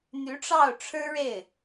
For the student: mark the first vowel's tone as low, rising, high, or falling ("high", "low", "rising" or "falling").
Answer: rising